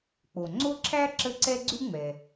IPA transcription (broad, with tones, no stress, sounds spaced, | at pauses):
k͡p o˩ ŋ͡ǀ o˥ ǁʰ æ˥ ǁ ə˥˩ ǀ ɛ˥ ɡ͡ǀ ʉ˥ ŋ͡m ɛ˩